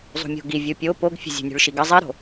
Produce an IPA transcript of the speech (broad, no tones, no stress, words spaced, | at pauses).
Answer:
zˤṳmʲo̤ɡi vʲupʲo poɡfʲə̤ zʲṳnʲṳɭʃiɡə zˤiɾo̤